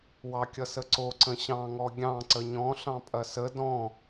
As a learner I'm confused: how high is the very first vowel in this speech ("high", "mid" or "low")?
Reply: low